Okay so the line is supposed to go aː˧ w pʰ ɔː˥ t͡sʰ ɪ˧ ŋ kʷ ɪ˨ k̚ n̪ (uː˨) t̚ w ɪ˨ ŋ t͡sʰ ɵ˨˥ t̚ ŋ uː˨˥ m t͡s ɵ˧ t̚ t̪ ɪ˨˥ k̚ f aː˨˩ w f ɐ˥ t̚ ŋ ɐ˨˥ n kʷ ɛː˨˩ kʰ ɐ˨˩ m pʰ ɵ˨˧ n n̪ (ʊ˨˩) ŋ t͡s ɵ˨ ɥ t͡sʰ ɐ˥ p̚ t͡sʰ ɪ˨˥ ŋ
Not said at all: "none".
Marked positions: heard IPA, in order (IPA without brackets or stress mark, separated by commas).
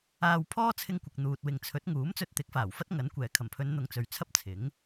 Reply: uː˨, ʊ˨